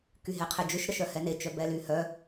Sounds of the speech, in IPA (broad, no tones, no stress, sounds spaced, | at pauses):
k y ɦ e qʰ e d͡ʒ ʏ ʃ ɾ ə ʃ œ h ɛ n e t͡ʃ œ b ɛ l y h œ